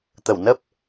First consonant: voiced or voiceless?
voiceless